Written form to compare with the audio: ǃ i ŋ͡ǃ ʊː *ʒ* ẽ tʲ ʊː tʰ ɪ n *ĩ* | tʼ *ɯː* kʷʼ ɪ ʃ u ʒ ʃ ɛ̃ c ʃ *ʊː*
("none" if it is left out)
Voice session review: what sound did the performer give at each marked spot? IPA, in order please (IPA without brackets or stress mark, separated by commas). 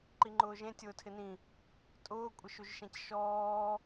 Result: ʒ, ĩ, ʊː, ɔː